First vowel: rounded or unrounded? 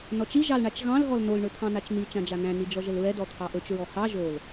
rounded